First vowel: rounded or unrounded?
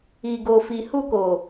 unrounded